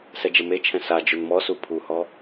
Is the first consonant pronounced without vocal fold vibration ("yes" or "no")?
yes